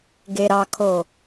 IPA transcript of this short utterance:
ɡ e ɾ ɑ kʰ o

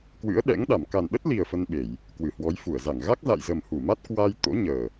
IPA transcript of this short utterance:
k w ɨ̰˧˥ ə̯ ɗ ɛ̰˧˥ ŋ ɗ a˧˩ m k a˨˩ n ɗ ə˦˥ t̚ l i˨˩ ə̯ f ə˧ n ɓ e˧˩˨ j | k w ɨ˧˩ h w ɔ˨˦ j f u˧˩ ə̯ z a˧˩ ŋ ɣ a˦˥ k̚ z a̰˧˨ j z ə˨˩ m h u˧˩ m a˦˥ t̚ k w a˧ j t̪ o̰˧˥ ɲ əː˨˩

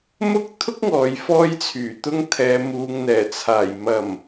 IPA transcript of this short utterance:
m ʊ˥ k̚ t̪ʰ ʊ˥ k̚ ŋ ɔː˨ j f ɔː˧ j t͡sʰ yː˨˩ t̪ ʊ˧ ŋ t̪ʰ ɛː˨ m uː˨ ŋ n̪ ɛː˨˩ t͡sʰ aː˨˩ j m ɐ˨˩ m

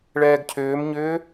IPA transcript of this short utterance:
ɭ ɛː ɡ cʰ ʏː m ɲ ʏː

